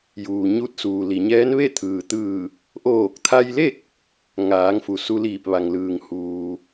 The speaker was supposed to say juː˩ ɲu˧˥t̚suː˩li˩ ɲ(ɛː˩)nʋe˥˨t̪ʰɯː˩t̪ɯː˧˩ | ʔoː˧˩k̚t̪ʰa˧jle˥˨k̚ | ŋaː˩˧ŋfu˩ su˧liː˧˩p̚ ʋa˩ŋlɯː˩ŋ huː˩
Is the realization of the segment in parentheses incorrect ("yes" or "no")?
yes